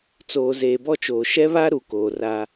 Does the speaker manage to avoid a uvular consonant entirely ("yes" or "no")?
yes